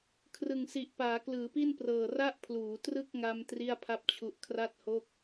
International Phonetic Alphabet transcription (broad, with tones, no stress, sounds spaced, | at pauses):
kʰ r ɯ˨˩ ŋ s i˨˩ ʔ p aː˩˦ k l ɯː˩˦ p i˥˩ n p r ɤː˨˩ r a˥˩ ʔ pʰ l uː˩˦ t r ɯ˥˩ k̚ ŋ a˧ m t r i˥˩ a̯ pʰ a˥˩ p̚ t͡ɕʰ u˦˥ ʔ kʰ r a˥˩ t̚ h o˥˩ k̚